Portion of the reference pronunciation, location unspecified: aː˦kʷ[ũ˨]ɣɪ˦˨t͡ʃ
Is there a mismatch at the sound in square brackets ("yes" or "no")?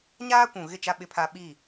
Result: no